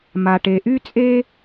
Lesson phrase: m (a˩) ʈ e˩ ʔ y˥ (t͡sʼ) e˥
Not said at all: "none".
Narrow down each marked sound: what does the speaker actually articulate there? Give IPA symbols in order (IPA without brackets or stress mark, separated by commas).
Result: a˩, t͡sʼ